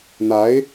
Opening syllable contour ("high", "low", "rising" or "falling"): rising